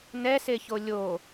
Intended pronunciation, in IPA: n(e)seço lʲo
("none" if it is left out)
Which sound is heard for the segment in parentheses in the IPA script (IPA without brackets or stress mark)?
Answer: ɛ